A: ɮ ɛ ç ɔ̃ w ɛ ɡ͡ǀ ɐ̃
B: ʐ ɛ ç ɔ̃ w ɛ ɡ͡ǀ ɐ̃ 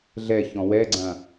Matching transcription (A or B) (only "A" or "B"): A